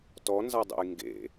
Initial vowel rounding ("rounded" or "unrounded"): rounded